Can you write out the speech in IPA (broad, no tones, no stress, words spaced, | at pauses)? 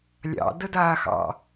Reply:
lʲɑ̰dədaːxɑ̰